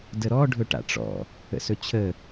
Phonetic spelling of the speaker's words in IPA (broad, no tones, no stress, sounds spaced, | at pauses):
d ə ɾ ɔ ɖʱ ɵ ʈ a̰ ʈ͡ʂ ɔ̰ | ə̰ s ɵ t͡ɕʰ ə